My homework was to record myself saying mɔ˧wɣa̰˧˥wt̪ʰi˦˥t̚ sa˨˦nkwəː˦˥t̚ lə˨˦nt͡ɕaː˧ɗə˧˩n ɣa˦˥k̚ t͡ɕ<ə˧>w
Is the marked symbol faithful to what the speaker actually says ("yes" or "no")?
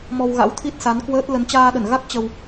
yes